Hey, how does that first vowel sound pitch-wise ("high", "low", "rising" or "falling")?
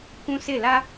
high